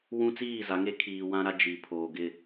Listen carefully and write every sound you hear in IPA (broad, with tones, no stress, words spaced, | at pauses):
wũ˦t͡siː˦˨ za˨˦ŋe˦kʰiː˨ wã˦ɾa˦ d͡ʒi˨ pʰoː˨ɡɪ˦˨